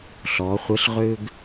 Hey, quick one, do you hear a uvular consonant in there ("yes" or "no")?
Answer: yes